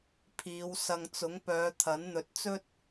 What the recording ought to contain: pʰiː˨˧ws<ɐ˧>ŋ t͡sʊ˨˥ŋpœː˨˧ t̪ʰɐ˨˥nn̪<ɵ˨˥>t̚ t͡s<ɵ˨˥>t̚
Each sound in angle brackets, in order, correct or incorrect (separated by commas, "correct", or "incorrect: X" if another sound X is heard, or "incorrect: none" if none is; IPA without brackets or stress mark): correct, correct, incorrect: ɵ˥